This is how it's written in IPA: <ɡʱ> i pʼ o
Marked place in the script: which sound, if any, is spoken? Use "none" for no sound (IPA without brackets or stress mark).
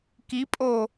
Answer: k